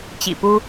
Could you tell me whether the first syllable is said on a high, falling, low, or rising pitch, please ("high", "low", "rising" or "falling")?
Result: low